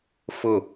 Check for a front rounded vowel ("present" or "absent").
absent